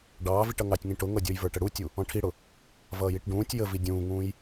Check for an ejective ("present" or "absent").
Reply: absent